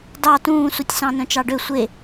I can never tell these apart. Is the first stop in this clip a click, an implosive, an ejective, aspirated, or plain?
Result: plain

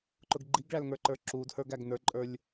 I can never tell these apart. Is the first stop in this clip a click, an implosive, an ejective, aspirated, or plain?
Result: click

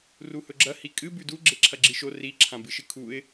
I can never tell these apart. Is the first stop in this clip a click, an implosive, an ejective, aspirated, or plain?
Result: click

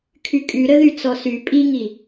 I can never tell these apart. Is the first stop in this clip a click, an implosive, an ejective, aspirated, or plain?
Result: aspirated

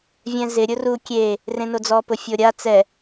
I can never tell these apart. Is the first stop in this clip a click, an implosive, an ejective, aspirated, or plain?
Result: plain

